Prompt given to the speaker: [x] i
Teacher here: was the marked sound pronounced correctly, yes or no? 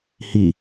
no